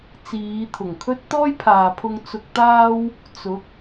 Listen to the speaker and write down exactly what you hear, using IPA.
t͡s iː˨˧ t̪ʰ ʊ˨˩ ŋ kʰ ɵ˥ t̚ t̪ ɔː˥ j pʰ aː˨ pʰ ʊ˧ ŋ t͡s ʊ˧ k̚ t̪ aː˥ w | t͡s ʊ˨˥ k̚

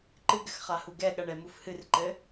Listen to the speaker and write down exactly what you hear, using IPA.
ǃ ɨ ɡ ɘ x χ a h u ɡ ɛ ɠ ɐ ɳ ɛ m u f h ɨ r ǃ ɘ

